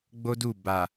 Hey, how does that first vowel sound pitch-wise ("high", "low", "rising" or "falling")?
high